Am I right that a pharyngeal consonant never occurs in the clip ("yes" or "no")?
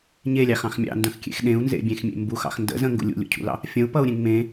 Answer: yes